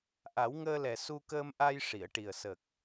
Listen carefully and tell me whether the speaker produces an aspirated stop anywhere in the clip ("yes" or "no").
no